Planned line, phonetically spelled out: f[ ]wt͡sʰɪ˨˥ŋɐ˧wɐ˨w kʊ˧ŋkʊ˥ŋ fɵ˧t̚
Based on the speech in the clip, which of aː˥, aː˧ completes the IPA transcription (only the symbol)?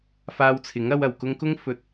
aː˧